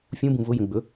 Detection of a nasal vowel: present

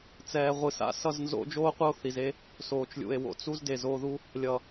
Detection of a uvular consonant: present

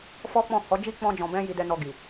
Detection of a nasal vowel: present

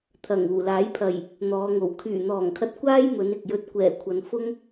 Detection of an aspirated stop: present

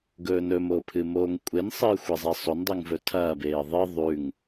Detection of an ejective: present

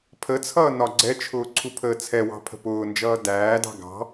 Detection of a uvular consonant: absent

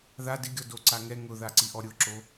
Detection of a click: present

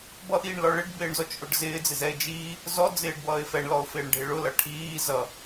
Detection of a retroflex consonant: present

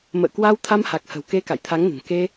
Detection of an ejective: absent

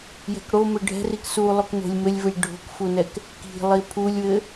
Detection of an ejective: absent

